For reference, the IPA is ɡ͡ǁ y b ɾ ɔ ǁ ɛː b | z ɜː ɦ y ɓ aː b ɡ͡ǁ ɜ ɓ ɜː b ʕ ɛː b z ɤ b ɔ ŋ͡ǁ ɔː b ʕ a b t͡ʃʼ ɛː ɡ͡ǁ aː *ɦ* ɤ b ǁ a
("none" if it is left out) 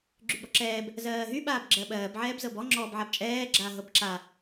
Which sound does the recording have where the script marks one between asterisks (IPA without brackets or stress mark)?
ɦ